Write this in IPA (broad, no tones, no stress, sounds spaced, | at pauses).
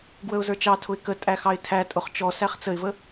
ɡ w ə ʊ̯ z ə˞ t͡ʃ ɑ tʰ ʊ ɪ̯ k ə tʼ æ x ɑ ɪ̯ tʰ æ tʼ ʊ χ t͡ʃ ɔ s æ χ t͡s ə ɪ̯ v ə